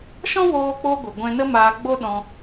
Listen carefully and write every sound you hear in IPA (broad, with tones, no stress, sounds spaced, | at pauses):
ʃ ɔ̃˦ w oː˦ k͡p o˦ ɡʷ ɨ˨ ɡʷ ɛ̃˧ n ə˦ m aː˧ ɡ͡b o˦ ɗ ɔ̃˧